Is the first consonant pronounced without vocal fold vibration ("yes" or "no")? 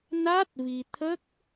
no